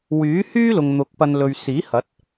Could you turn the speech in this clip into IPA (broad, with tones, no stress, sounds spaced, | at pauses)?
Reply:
w yː˨˥ h yː˥ l ʊ˨ ŋ n̪ ʊ˨˥ k̚ p ɐ˧ n l ɵ˨ ɥ s iː˨˥ h ɐ˨˥ t̚